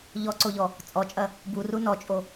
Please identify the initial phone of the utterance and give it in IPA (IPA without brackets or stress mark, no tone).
ʎ